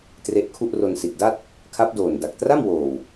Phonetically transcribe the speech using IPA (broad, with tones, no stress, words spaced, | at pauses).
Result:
tre˦˥ʔkʰu˥˩ʔ ro˧nsi˨˩t̚da˥˩t̚ | kʰa˦˥p̚doː˨˩n da˨˩k̚tra˥˩mwoː˨˩w